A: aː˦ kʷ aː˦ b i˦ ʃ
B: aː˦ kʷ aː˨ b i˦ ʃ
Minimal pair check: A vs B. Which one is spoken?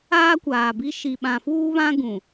B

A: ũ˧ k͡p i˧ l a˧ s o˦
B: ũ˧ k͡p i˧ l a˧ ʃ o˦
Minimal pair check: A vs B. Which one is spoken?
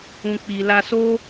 A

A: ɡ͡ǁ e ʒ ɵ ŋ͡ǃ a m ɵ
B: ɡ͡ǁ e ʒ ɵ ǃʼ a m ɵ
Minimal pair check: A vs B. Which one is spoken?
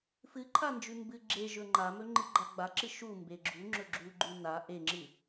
A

